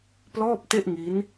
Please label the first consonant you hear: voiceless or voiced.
voiceless